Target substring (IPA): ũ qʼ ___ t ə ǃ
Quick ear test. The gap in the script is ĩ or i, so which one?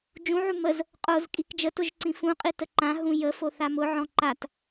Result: i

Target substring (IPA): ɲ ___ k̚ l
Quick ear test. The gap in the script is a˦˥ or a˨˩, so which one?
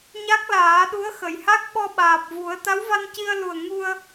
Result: a˦˥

